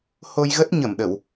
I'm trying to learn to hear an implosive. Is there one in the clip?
yes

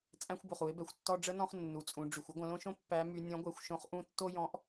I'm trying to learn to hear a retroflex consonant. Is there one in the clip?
yes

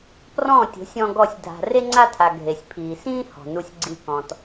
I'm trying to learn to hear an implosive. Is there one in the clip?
no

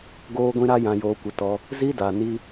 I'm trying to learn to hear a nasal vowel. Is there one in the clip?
yes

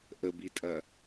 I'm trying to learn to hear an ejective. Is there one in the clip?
yes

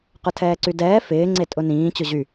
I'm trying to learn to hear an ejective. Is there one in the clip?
yes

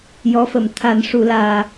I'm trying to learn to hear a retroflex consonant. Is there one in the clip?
yes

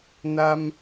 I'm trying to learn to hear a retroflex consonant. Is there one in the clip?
no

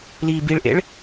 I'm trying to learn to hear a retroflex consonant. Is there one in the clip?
yes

